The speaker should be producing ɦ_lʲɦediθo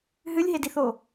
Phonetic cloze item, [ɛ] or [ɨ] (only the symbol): ɨ